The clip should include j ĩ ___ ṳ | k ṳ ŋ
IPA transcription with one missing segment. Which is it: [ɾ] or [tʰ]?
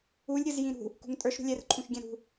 ɾ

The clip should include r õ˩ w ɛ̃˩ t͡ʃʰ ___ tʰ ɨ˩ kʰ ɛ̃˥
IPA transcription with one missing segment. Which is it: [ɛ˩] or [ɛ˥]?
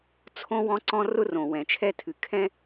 ɛ˥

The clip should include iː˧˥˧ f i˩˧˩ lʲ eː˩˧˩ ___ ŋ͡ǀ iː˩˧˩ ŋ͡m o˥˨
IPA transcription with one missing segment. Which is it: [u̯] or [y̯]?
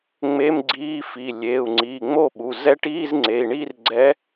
u̯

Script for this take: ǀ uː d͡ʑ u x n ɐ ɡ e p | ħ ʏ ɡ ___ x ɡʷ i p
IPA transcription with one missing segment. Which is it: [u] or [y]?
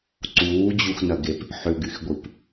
y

